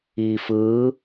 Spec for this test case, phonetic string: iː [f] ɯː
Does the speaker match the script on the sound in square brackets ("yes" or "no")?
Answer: yes